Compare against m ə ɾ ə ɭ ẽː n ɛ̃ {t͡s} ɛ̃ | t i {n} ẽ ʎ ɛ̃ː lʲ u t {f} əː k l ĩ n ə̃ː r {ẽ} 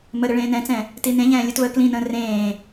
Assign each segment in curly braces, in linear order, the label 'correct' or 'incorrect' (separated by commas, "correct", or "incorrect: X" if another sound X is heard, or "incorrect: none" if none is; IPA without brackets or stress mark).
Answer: correct, correct, incorrect: v, incorrect: ẽː